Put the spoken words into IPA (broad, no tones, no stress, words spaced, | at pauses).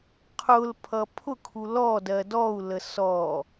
qʰʊl pʰʌpʰʊkʰu lɔ dɜdɔu̯lə sɔ